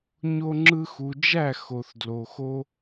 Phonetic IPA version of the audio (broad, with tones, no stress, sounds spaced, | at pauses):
ɲ o˧ ŋ͡ǁ ɯ˧ x u˨ d͡ʒ æ˦˨ x o˨ θ d l o˨ x o˦